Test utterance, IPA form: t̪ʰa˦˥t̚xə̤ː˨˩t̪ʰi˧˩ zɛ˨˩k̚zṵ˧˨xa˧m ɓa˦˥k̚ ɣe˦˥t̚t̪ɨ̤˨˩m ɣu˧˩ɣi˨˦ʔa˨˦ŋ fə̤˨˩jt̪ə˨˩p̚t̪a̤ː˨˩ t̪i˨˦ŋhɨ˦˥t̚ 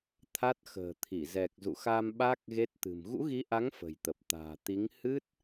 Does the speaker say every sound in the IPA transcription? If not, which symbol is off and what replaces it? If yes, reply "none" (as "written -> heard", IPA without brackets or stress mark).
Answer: u˧˩ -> ṵ˧˥